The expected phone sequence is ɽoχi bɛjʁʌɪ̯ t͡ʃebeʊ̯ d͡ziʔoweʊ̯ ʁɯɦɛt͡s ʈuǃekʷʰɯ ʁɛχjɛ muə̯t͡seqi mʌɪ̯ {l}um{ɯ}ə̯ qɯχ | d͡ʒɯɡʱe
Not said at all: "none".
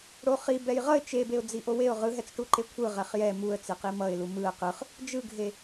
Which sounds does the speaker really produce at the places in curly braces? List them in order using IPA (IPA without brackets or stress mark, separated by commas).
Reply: l, ɯ